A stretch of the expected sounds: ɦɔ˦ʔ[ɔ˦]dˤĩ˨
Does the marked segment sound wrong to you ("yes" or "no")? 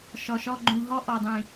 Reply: yes